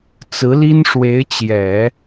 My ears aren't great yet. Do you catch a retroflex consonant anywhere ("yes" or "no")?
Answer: yes